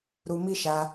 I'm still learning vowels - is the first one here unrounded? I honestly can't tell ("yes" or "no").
no